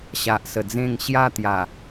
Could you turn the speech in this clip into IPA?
ɕ a˨ ʔ s ə˨˩ d͡z ẽ˥˧ ŋ ɕ j a˥˧ t̪ j a˨˩

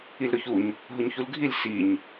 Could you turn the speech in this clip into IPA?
i l ɾ ʊ ç u ɲ | ɦ ʊ ɲ ç u l ɡʱ i l s i ɲ

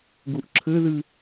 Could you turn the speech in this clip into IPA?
ɡ u ʔ ǁʰ ɘ ð ɨ

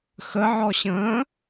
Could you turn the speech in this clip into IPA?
x ə ʕ ɔ ɕ ə̃ː

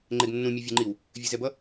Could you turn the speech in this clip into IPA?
ŋ͡ǃ e ɡ nː ũ mʲ e vʲ e ŋ͡ǃ i w | vʲ e z ɛ b ʌ

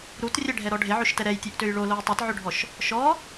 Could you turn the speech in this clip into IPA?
ɾ u t rʲ ɛ ɖʱ ɛ ɾ ɔ ɖʱ e ʕ ø ʃ t ɛ ɾ ɛ j tʲ ø ʔ t ø j ɭ o l o j tˤ e t ʕ ø ɖʱ ɔ ʃ | ʃ ɔ

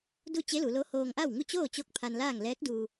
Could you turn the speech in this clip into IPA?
d u˥˨ t͡ɕ e˧˥ l u˩˧ l o˧˥ h oː˧ ŋ ʔ a˥˨ w ŋ u˥˨ t͡ɕ oː˥˨ t͡ɕ o˥˨ k̚ pʰ a˧ n l aː˥˨ ŋ l ɛː˧˥ k̚ d uː˧

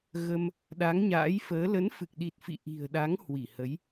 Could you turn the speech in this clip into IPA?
ɣ ə˧ m | ɗ a˨˦ ŋ ɲ a̰ː˧˥ j f əː˨˦ l ə˨˦ n f ɨ˨˩ k̚ ɗ i˨˩ t̚ f ḭ˧˨ ʔ i̤˨˩ ə̯ ɗ a˨˦ ŋ h w i˧˩ h ə˨˦ j

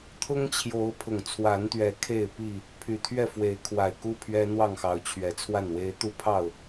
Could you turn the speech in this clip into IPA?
t̪ʰ ʊ˦ ŋ t͡ɕʰ j o˨˦ ʊ̯ pʰ ʊ˨˩ ŋ t͡sʰ w a˨˦ n t̪ ɥ ɛ˨˦ kʰ e˥˨ ɪ̯ p i˥˨ | pʰ y˨˩ t̪ʰ ɥ ɛ˥˨ f w e˨˦ ɪ̯ kʰ w a˨˩ ɪ̯ k u˦ pʰ ɥ ɛ˦ n̪ w ɑ˥˨ ŋ x ɑ˨˦ ʊ̯ t͡ɕʰ ɥ ɛ˨˦ t͡sʰ w a˥˨ n w e˦ ɪ̯ t̪ u˦ pʰ ɑ˥˨ ʊ̯

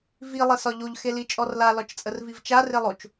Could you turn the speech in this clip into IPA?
v i lˠ e s ɒ ʎ o ʎ x e l i t͡ʃʼ ɔ r l a l ɒ t͡ʃ t͡sʼ ə r v i v t͡ʃ a r e lˠ o t͡ʃ

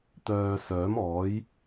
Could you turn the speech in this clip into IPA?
t̪ œː˨ s œː˨˥ m ɔː˨˥ j

